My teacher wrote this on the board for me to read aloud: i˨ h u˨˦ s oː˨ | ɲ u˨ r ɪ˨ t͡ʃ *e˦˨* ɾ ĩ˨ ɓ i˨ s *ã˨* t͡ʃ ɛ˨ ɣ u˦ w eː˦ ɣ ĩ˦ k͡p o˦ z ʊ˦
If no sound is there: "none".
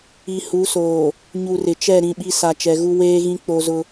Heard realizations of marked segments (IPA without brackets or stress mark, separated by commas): ɛ˦˨, a˨